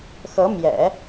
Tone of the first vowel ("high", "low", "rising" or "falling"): rising